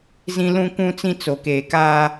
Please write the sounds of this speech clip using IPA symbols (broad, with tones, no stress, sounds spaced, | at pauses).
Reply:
z ĩ˦ l ũ˦ kʷ ũ˦ t͡s ĩ˦ t͡s o˨ k eː˨ k aː˦